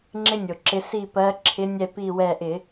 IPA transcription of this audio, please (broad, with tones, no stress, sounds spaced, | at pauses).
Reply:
ŋ͡ǁ ɪ˦ nʲ o˩ ǁ ɪ˨˦ s i˧˩ p ɜ˨˦ ǁʰ ɪ˨˦ nʲ ɛ˧˩ p i˧˩ w ɛ˧˩ ʔ ɪ˧˩˧